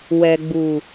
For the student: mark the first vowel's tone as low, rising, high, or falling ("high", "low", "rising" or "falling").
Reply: low